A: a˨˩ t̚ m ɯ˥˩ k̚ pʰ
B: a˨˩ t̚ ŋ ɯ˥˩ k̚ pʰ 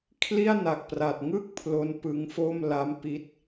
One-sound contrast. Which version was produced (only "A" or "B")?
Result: B